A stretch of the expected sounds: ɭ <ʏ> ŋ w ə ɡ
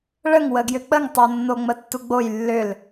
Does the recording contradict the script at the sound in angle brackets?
yes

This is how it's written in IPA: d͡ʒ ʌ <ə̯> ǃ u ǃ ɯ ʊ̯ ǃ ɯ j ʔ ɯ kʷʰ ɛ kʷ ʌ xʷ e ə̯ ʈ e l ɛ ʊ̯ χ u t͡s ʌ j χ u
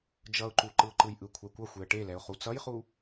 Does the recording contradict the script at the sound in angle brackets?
yes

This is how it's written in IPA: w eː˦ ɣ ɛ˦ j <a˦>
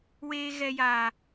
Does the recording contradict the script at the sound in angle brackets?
yes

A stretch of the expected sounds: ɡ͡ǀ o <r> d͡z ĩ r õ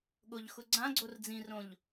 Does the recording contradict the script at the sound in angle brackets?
no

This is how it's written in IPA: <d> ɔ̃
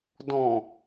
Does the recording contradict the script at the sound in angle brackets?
no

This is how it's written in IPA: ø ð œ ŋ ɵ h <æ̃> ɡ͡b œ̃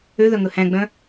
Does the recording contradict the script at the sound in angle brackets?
no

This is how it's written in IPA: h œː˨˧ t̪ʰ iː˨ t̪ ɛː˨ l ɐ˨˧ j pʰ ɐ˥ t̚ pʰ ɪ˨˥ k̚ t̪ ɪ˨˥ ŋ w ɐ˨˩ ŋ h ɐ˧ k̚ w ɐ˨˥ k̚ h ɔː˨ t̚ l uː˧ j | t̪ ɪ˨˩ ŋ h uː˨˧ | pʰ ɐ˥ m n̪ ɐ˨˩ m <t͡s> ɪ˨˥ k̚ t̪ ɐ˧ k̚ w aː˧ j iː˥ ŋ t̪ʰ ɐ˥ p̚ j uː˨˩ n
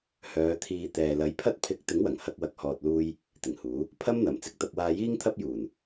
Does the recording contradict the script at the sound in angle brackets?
no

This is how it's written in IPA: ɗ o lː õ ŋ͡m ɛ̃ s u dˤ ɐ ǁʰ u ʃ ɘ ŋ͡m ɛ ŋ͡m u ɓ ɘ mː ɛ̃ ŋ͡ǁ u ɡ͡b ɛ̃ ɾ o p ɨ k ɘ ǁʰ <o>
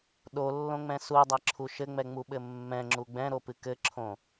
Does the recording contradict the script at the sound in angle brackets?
yes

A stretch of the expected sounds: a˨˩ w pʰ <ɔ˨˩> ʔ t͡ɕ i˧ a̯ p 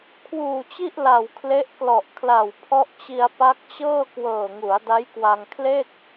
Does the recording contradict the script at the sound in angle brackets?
yes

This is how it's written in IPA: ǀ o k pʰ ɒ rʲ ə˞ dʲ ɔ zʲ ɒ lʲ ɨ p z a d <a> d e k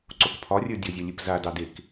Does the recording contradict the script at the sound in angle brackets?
yes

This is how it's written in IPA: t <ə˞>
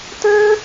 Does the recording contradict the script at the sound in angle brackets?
no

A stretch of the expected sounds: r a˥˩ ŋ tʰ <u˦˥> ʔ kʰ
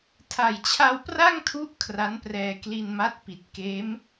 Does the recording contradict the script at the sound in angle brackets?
no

